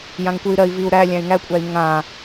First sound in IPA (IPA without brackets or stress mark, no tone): j